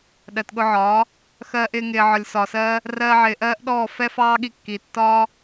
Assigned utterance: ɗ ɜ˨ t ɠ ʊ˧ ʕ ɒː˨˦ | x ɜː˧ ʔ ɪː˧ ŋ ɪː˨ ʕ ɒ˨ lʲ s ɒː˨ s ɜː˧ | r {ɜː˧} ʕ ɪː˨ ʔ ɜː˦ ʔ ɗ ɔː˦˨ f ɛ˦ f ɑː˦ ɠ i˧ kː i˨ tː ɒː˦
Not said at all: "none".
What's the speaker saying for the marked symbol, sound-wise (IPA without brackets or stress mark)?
ɜː˧